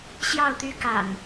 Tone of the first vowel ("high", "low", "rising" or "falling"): falling